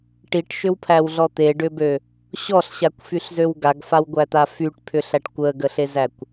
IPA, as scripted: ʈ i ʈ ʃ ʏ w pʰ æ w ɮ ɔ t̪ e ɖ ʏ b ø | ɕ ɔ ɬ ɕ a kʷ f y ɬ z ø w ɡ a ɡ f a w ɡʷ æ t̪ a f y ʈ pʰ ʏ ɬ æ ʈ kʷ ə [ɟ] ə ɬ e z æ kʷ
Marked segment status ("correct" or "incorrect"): incorrect